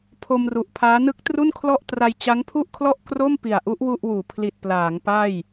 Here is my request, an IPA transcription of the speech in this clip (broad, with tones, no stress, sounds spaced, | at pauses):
pʰ o˧ m r u˨˩ ʔ pʰ aː˦˥ n ɯ˦˥ k̚ t r u˥˩ n kʰ l ɔ˥˩ ʔ t r a˧ j t͡ɕ a˦˥ ŋ pʰ u˥˩ ʔ kʰ l ɔ˥˩ ʔ k r o˥˩ m p i˨˩ a̯ ʔ u˦˥ ʔ w u˥˩ ʔ w uː˩˦ pʰ l i˨˩ t̚ p l aː˩˦ ŋ p a˥˩ j